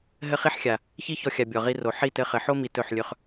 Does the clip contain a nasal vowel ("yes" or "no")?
no